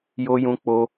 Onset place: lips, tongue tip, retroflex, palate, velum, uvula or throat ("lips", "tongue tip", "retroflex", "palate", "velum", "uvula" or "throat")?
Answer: palate